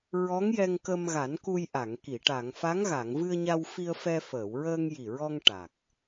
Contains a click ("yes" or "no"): no